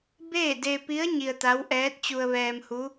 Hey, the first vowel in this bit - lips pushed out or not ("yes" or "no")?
no